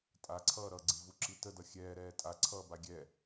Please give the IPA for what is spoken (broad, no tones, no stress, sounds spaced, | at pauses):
tʼ a ǀʰ ʌː ɾ ʌ ɡ͡ǀ i v u ǁ i t ə d ʌ xʲ ɛː ɾ ɛː tʼ a ǀʰ ʌː b a ɡʲ ɛ